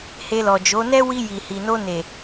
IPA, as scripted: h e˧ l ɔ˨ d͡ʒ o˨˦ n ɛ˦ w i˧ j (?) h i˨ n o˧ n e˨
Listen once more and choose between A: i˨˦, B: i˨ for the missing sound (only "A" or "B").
B